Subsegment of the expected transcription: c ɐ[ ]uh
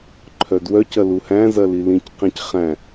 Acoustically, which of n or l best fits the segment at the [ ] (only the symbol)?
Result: l